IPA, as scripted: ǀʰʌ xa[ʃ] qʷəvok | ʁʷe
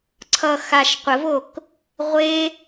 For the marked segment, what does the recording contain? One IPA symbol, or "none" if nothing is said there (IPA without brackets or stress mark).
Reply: ʃ